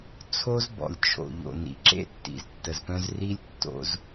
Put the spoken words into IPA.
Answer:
t͡sʰ o˦ z b ɔ̰˨ lʲ t͡ʃʰ o̰˨ ʎ o̰˨ n ḭ˨ ǁ ḛ˦ tː ḭ˨ z tː ə˨ z p œ̃˦ z r i˦ lʲ tː o̰˦ z

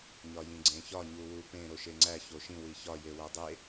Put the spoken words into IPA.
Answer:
ɲ ɒ j ĩ ɡ͡ǀ ẽ ç ɒ ɲ u w u p ẽ ɾ o ʃ e ŋ͡ǀ æ ç o ʃ ĩ w i ç ɒ j e w æ dˤ e

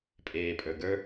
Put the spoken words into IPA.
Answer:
pʼ eː pʼ ə˞ ɡ ə˞

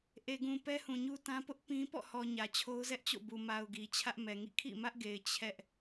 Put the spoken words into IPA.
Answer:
ʔ e˨ ɡ ũ˨ p ɛ˦ h ũ˨ ɲ u˦ t ã˦ p ʊ˦ ʔ p ĩ˦ p ɔ̰˦˨ h ɔ˨ ɲ ä˨ t͡ɕʰ o˦ ʊ̯ z ɛ˦ ʔ t͡ɕ o̰˦˨ b u˨ m a˨ ʊ̯ ɡ i˨ t͡ɕʰ ä˦ ʔ m ɛ˨ ŋ ḭ˦˨ kʰ ḭ˦˨ m ä˦ ʔ ɡ e˨ ɪ̯ t͡ɕʰ ɛ˦ ʔ

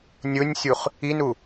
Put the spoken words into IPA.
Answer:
nʲ ʊ nʲ sʲ u χ | i n u

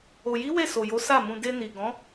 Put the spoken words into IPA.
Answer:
o˨ j i˨˦ w e˦˨ s o˨ j o˨˦ s a˦˨ m ũ˧ d e˧ n i˨ ɡ ɔ̃˨˦

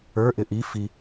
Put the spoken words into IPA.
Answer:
ə˞ ʔ ɪ ʔ i f i

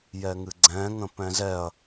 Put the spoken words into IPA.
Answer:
j ɛ ŋ ɨ ɡ͡ǀ ɛ̃ ŋ ə̃ p ɛ̃ z ɛ ɐ̯

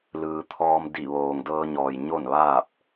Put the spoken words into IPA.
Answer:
l ɯː˩ t̪ʰ ɔː˧ m d i˧˩ ʋ oː˩ ŋ d ɤː˧ ɲ ɔː˩ j ɲ o˥˨ n ʋ aː˥˨ p̚

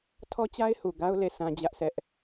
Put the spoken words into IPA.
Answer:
tʰ ɔ˦ t͡ɕ a˦ ɪ̯ h u˨ ɡ a˦ ʊ̯ l e˦˨ s ã˦ d͡ʑ ä˦ ʔ s ɛ˦ ʔ

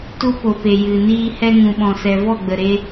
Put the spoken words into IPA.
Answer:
t u˦ p o˨ p e˨ j ɨ˨ n iː˧ h ɛ˦ ŋ ũ˨ ɓ ɔ̃˨ s ɛ˨ v ɔ˦˨ ɡ͡b ə˨ ɾ e˧

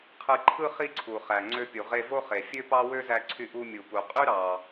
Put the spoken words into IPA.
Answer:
qʰ ɯ˧ ǃʰ ɯ˥ χ i˥ ǀʰ u˩ χ æ˩ ŋ͡ǀ ø˧ pʲ u˩ ʁ e˧ v o˥ χ e˩ fʲ ø˥ p ɑ˥ w ø˥ z æ˧ ǀʰ y˧ ʔ u˧ mʲ u˩ p u˩ qʼ y˥ ɾ ɑ˩

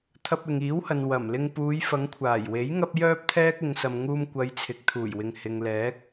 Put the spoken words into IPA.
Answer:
t̪ʰ ɐ˧ p̚ ɪ˨ ŋ iː˨˥ w h ɐ˨ n w ɐ˨˩ m l ɪ˧ ŋ p uː˨˧ j f ɐ˨˧ ŋ kʷʰ aː˨˩ j w e˨˥ j ŋ ɐ˥ p̚ j œː˥ p̚ t̪ʰ ɛː˥ k̚ ɪ˨˧ ŋ s ɐ˨ m ŋ uː˧ m kʷ ɐ˨˧ j t͡sʰ ɪ˨ k̚ t̪ʰ uː˨˩ j w ɪ˨ ŋ h ɪ˨ ŋ l ɛː˨˥ k̚

